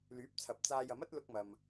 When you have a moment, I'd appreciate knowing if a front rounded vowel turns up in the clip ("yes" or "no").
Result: yes